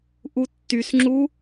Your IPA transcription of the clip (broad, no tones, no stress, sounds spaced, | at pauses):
ʔ u tː y s ŋ͡ǁ u